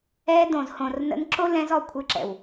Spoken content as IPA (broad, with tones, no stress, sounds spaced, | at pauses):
ɛ˧ d õ˨ z h õ˨ r n ə̰˧ n ǁ o˦ l ɛ̃˧ z ɔ˦˨ kʷʰ ɨ˧ ǁ ɛ̰˨ w